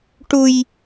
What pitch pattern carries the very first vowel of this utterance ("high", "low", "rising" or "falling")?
high